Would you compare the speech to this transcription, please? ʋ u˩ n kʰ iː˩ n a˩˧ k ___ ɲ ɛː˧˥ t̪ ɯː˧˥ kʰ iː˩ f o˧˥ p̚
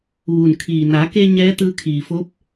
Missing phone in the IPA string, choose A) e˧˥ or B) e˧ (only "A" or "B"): B